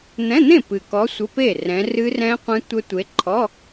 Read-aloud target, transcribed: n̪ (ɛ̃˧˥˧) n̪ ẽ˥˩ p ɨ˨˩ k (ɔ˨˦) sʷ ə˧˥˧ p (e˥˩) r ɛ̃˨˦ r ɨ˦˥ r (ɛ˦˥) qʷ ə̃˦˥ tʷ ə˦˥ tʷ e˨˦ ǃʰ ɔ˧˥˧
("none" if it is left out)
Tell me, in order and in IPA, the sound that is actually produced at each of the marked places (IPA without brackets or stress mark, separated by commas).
ɛ̃˧˥˧, ɔ˨˦, e˥˩, ɛ̃˦˥